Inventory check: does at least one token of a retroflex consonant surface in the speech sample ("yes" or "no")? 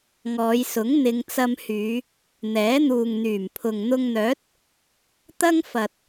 no